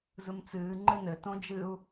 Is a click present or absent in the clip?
present